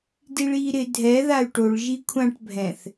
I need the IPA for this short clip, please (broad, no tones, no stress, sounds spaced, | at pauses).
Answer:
d i ɭ iː ɾ ɪ dʱ ɛ ð a y̯ ʈ o ɭ ʒ i kʷʰ ã ʈ bʱ ɛ̃ θ